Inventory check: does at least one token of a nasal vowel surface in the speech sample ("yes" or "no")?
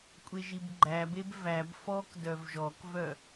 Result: no